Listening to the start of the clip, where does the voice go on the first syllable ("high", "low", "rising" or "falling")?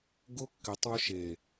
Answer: high